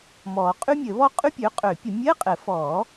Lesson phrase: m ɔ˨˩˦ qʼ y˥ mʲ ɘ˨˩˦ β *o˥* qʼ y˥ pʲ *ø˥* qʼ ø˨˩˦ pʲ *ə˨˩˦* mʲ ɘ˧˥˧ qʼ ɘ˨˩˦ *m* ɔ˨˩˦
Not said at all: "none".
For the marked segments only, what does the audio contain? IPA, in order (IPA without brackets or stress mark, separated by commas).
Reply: ɔ˥, ø˩˥, ə˨˩˦, f